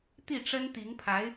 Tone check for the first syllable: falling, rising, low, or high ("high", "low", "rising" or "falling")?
falling